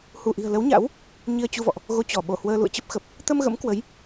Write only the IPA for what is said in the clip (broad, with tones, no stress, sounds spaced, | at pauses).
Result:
h u˧˩ ʔ i̤˨˩ ə̯ l ə˨˦ w ɲ a̰˧˥ w | ɲ i˧ ə̯ t͡ɕ u˧ v ɔ̰˧˨ ʔ | ɣ o˧ t͡ɕ ɔ˧˩ ɓ o˧˩ h w əː˧ l ṵ˧˨ ə̯ t͡ɕ ə˦˥ p̚ x ə˨˩ p̚ | t̪ ə˧ m ɣ ə̰˧˥ m k w ə˨˦ j